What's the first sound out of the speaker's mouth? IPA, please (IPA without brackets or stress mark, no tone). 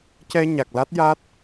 c